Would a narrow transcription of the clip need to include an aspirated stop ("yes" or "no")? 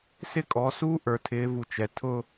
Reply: yes